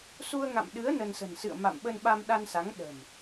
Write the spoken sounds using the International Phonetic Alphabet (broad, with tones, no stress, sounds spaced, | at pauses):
s u˧ ə̯ ŋ a̰˧˨ m ɗ ɨ˨˦ ə̯ n ə˧ n s ə̤˨˩ n s ɨ̰˧˨ ə̯ m a̰˧˨ m ɓ ə˧ n ɓ a˧ m ɗ a˧ n s a˨˦ ŋ ɗ ə̤˨˩ m